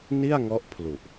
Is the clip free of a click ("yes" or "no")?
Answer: yes